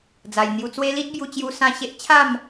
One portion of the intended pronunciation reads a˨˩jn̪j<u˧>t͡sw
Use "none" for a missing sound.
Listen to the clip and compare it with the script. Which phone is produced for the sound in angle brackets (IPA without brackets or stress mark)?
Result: u˧